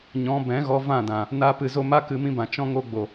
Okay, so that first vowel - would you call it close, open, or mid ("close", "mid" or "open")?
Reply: mid